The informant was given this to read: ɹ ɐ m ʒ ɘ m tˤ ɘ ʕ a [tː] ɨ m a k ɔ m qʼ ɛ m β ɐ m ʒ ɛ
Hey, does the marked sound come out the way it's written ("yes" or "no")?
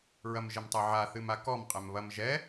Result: no